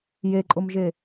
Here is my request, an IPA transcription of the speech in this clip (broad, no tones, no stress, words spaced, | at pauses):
jeǃʼʊmʒe